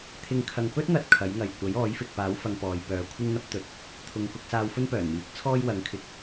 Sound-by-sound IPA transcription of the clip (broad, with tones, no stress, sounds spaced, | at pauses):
t̪ʰ ɪ˨ ŋ kʰ ɐ˨ ŋ p ɵ˥ t̚ ŋ ɐ˨ t̚ kʰ ɐ˨˥ j ŋ ɐ˨ j kʷ ɐ˨˥ j ɔː˨˥ j f ɪ˨ k̚ p aː˨˥ w f ɐ˧ ŋ p ɔː˨˧ j p œː˨˧ kʷʰ ɪ˥ ŋ n̪ ɐ˥ p̚ t̪ ɵ˨ t̚ | t̪ʰ ʊ˨ ŋ k ʊ˧ k̚ s aː˧ w f ɵ˥ n p œː˨˩ n m iː˨˥ k̚ t͡sʰ ɔː˥ j w ɐ˨˧ ŋ kʰ ɪ˧ k̚